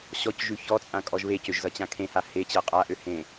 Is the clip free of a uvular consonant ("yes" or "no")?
no